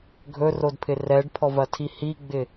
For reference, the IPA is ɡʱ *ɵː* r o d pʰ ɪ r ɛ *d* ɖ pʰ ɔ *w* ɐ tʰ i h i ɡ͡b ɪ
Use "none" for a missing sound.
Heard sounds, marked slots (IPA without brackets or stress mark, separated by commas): ɵ, none, v